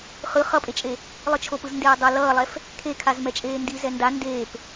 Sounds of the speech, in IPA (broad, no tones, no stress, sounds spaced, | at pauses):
χ ɯ χ ʌ pʼ e t͡ʃʼ e | lˠ ɯ t͡ʃʰ o p ɯ z n d eː dˤ ʌ l ʌː lˠ ɛ f | kʰ e kʰ a z m ɛ t͡ʃʼ eː n d i z ɛ n d a n d eː p